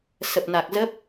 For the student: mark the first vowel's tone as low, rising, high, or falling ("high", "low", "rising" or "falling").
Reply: low